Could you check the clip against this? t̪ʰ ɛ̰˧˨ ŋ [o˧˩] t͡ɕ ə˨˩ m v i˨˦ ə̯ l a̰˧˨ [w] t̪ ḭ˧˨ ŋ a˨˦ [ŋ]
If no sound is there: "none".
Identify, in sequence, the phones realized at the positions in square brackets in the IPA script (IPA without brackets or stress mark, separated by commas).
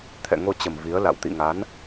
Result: o˧, w, n